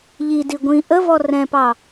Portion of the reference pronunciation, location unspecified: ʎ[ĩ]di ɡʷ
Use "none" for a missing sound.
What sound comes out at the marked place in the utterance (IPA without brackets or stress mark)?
i